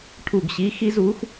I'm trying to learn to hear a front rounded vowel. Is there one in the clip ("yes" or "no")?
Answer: no